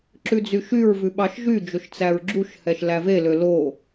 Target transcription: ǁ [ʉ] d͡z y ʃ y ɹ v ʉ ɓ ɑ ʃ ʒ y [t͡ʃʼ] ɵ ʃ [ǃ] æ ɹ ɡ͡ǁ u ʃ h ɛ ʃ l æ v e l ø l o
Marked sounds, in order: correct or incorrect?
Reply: correct, incorrect: d͡ʒ, incorrect: t͡s

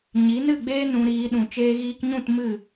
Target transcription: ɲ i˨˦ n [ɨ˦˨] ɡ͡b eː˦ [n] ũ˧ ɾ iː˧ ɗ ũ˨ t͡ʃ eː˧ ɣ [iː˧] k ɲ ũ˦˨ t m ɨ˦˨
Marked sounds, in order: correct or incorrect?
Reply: correct, correct, correct

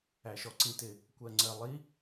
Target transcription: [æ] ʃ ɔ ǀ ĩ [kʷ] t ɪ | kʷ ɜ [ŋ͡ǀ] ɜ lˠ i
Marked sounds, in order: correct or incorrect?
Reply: correct, incorrect: none, correct

